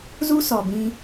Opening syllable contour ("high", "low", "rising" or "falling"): high